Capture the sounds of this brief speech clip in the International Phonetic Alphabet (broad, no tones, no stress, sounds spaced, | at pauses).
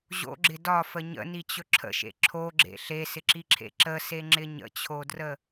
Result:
ʑ o̰ ɡ͡ǁ ɪ d ɒ f ə ɲ ə̰ n i t͡ɕ ɵ ǁʰ ə̰ ʃ ḛ ǁʰ o ɡ͡ǁ ḛ ɬ e s ɪ ǁ i ǁʰ ḛ ǁ ə s e ŋ͡ǁ ɪ ɲ ə̰ t͡ɕʰ o d r ə